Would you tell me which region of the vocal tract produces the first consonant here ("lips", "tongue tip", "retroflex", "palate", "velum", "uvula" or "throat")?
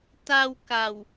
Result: tongue tip